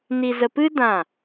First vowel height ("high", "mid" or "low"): high